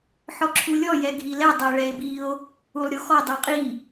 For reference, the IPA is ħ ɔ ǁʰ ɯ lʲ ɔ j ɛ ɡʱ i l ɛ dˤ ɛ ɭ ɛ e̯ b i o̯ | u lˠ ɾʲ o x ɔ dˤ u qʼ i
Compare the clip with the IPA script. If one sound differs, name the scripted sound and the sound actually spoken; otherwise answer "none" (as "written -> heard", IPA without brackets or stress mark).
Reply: ɯ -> u